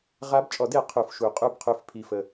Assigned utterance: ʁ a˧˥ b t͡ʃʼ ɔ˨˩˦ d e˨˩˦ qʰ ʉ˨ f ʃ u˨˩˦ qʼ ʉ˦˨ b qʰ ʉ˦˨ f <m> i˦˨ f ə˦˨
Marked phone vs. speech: incorrect: pʰ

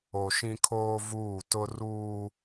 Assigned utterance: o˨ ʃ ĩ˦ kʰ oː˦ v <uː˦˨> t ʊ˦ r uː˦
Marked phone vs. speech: correct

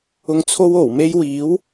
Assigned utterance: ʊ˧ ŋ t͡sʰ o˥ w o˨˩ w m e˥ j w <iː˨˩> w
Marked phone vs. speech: incorrect: iː˨˥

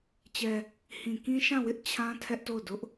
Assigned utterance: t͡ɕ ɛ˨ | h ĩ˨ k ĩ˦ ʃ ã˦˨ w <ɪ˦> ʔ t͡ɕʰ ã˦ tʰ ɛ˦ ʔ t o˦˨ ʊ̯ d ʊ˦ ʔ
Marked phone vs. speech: correct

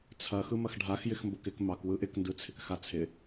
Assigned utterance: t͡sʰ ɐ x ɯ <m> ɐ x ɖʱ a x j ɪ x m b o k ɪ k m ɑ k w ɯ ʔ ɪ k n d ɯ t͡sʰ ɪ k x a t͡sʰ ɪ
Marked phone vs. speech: correct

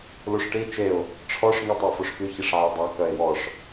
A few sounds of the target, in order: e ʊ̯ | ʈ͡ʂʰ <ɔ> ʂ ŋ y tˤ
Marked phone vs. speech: correct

